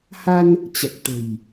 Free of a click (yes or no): yes